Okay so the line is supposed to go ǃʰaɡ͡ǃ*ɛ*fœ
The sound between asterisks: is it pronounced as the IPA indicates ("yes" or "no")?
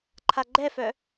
yes